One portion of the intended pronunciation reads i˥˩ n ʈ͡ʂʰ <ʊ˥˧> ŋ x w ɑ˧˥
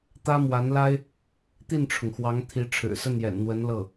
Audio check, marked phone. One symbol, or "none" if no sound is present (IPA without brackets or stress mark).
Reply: ʊ˩